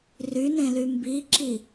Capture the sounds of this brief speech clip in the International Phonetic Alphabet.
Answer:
r y n ẽ l y m b i ǁ i

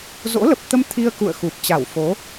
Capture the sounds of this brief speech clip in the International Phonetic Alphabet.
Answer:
z o̰˧˥ l ə˨˩ p̚ t̪ ə˧ m t̪ʰ i˧ ə̯ k ṵ˧˨ ə̯ x u˨˩ p̚ t͡ɕ a˧˩ w f o˨˦

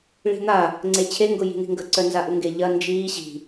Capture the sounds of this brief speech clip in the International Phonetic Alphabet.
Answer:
ɭ i̤ n̪ a | ŋ͡ǀ e t͡ɕʰ e ŋ ɡ ʊ j i̤ n̪ i̤ ŋ ɡ ə ǀ œ n z a ʔ u ŋ ɡ e ʎ ɐ n d͡ʒ iː ɕ i̤

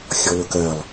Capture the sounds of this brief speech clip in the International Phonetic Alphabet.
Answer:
xʲ ɔ l ʊ k ɜ lˠ

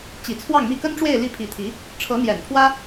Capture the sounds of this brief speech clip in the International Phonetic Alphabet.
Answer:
t͡ɕ i˨˩ t͡sʰ w ɑ˥˧ ŋ m i˥˩ k ə˥ n ʈ͡ʂ w e˥˧ ɪ̯ l i˥˩ pʰ i˧˥ t̪ʰ i˧˥ | ʈ͡ʂʰ ɤ˧˥ n̪ j ɛ˨˩ n pʰ w ä˥

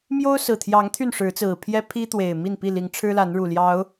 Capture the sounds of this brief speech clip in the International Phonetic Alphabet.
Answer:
m j o˦ ʊ̯ s ɹ̩˨˩ t̪ʰ j ɑ˨˦ ŋ t̪ʰ y˥˨ n ʂ ɻ̩˨˦ t͡s ɹ̩˨˩ pʰ j ɛ˦ pʰ i˦ t̪ w e˨˩ ɪ̯ m i˥˨ n p i˥˨ l i˨˦ ŋ ʈ͡ʂʰ ɻ̩˦ l a˨˦ n ɻ u˨˩ l j ɑ˨˦ ʊ̯

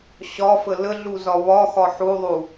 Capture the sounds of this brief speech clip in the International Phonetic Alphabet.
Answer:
ɕ ɒ f ə l ə ɮ u z ɒ β ɒ x ɒ ħ u ðˤ u

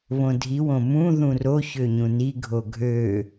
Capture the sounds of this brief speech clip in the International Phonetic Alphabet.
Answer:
β õ dʱ i w õ m ũ ð ũ r o ç ø ɲ ũ n i ɡʱ o ɡʱ ø

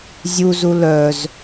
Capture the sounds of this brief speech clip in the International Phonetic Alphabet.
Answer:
zʲ u z u l œ z

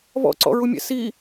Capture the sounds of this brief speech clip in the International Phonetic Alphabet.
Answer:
β ɔ̰ ǀ ɔ̰ ɹ u mʲ ɛ̰ s i

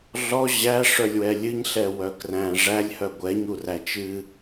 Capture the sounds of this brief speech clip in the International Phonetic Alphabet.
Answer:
ɮ ɔ ʑ æ ʂ œ lʲ w ɛ lʲ ɨ ɲ ɬ ɛ w œ k r æ̃ ʐ æ lʲ h œ ɡʷ ɛ ɲ u r æ t͡ʃ ɨ

